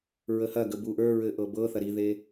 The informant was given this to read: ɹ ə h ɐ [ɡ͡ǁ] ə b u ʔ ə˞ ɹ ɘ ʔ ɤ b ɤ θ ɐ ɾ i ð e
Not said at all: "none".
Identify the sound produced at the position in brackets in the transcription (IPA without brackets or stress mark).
ɡ